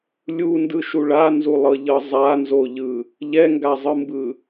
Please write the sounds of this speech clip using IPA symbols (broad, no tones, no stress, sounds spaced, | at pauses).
lʲ u n d ɯ ʃ u ɭ a n z u lˠ ɤ ʎ ɤ zˤ a n z o ʎ ɯ | ʎ ɛ ŋ ɡ a zˤ ɯ m b ɯ